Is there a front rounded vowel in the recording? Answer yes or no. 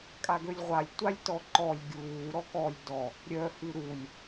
yes